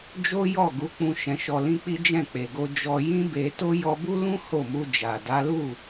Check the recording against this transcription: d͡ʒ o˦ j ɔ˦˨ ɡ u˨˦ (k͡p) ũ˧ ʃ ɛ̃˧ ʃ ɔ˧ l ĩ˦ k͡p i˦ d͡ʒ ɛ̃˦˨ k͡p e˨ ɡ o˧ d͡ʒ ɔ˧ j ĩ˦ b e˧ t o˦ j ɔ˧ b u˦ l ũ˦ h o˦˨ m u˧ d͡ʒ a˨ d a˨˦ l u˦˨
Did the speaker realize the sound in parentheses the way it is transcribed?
yes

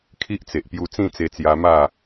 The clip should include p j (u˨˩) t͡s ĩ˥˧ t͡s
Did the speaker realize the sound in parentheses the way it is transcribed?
no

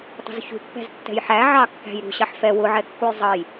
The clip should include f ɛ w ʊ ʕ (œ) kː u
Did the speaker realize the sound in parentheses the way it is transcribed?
no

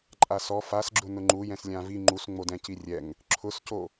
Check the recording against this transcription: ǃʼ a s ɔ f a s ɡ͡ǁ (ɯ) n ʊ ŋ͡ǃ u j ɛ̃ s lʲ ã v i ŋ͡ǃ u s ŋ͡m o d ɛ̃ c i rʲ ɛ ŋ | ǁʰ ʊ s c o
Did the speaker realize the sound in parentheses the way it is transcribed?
no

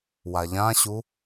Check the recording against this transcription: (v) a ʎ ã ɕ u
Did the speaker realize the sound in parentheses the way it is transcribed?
no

